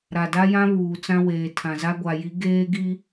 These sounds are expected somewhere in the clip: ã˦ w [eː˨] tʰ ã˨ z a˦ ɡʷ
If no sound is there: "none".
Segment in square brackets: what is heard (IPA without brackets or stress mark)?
eː˨